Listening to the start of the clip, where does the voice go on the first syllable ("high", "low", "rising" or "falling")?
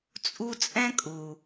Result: high